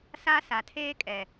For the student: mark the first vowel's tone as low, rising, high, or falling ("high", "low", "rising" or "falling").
high